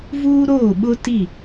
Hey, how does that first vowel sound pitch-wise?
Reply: high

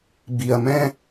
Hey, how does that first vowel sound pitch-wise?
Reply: low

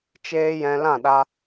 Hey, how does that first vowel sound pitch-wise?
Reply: high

